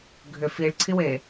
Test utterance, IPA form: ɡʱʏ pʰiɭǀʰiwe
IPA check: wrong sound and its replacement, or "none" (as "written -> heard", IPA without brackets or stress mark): pʰ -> f